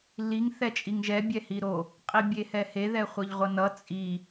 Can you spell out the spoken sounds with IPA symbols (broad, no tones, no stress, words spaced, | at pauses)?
liŋ θɛt͡ʃʼiŋʒɛ bʲɛhiɾo | qʼibʲehɛhe ðɛχʷʌʎʁʷʌnʌ t͡sʼi